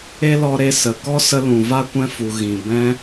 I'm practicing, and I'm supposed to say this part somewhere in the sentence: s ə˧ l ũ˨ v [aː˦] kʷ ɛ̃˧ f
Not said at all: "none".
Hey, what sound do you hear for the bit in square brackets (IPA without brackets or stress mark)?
a˦